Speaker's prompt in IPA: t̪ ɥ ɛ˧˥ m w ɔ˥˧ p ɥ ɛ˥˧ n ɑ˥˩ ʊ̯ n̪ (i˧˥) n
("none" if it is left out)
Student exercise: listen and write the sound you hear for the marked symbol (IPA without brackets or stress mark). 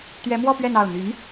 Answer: y˧˥